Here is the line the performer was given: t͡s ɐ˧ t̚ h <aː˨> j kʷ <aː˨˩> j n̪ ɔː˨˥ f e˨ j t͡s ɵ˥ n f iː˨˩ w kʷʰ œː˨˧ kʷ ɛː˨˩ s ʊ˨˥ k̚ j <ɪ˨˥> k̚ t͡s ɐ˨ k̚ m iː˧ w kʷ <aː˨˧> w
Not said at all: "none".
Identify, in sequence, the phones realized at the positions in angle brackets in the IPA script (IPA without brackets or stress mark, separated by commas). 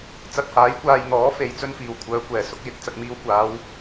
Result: aː˨˥, aː˧, ɪ˨˥, aː˨˧